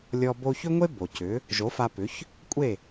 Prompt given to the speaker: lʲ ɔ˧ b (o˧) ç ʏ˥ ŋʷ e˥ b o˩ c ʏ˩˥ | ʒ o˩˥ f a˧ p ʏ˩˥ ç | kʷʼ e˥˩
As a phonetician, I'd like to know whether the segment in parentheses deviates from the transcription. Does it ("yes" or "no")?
no